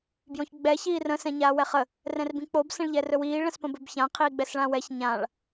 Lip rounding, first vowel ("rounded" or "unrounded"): rounded